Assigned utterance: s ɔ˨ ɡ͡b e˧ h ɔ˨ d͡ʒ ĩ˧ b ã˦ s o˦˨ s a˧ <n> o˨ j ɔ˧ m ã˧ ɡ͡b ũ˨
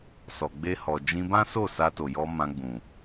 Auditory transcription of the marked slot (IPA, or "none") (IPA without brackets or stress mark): t